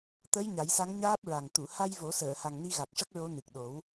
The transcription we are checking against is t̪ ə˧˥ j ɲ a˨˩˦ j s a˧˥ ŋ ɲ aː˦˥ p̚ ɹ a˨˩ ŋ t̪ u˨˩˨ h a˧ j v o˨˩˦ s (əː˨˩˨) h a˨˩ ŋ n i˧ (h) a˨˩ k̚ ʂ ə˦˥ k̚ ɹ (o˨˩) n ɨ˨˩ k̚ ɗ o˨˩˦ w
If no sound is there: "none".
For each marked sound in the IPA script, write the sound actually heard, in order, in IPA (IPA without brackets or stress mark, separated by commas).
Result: əː˨˩˨, ɣ, o˧˥